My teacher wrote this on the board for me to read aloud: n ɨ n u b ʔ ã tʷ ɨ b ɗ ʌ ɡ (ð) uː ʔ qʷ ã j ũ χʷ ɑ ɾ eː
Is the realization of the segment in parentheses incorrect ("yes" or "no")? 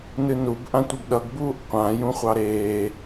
yes